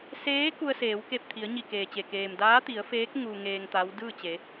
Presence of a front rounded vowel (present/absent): absent